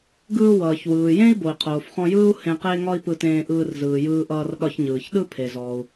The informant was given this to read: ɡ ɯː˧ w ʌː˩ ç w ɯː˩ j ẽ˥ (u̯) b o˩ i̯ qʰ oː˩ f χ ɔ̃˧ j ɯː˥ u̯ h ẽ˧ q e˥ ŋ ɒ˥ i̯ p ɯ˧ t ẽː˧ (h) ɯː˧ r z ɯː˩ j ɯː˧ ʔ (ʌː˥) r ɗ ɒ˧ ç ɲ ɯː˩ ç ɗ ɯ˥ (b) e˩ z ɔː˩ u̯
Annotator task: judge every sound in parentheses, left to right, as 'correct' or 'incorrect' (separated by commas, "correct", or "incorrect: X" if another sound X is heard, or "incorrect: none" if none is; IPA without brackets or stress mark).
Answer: incorrect: i̯, incorrect: ʔ, incorrect: ʌː˧, incorrect: pʰ